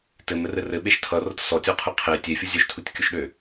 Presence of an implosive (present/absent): present